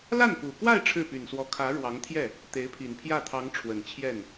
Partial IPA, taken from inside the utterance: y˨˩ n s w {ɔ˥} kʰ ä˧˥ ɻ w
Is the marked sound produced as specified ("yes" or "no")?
no